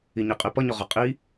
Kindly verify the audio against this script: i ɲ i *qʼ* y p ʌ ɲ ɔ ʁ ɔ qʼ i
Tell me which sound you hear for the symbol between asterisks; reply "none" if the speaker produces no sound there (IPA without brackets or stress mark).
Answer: qʼ